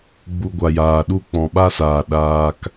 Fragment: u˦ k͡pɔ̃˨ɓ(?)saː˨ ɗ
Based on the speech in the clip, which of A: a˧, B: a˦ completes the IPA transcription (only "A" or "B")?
B